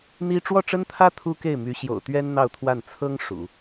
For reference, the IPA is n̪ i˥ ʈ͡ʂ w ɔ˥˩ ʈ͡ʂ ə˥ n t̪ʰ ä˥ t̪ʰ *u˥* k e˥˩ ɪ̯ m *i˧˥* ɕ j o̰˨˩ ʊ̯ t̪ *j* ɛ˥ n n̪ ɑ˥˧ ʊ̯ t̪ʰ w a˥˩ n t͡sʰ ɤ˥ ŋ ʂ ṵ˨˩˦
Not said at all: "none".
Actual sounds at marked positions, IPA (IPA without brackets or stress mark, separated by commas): u˥, y˧˥, ɥ